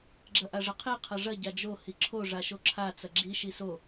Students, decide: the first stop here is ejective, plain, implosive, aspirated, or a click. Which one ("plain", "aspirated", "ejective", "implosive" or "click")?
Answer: click